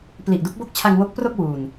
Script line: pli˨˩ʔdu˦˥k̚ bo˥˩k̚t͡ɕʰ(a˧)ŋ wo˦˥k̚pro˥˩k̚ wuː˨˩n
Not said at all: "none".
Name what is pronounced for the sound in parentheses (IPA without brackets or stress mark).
a˧